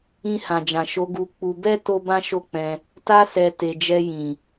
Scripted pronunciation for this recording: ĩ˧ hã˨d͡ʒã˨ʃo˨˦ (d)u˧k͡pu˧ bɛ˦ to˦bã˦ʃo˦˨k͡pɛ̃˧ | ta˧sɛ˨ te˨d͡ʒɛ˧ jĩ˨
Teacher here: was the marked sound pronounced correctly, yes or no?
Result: no